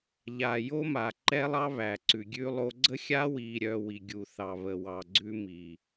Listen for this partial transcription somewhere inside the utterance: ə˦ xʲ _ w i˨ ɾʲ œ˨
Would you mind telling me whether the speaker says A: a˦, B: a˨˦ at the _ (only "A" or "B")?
A